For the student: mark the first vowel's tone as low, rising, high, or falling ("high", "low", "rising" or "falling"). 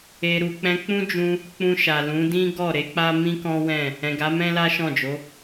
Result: low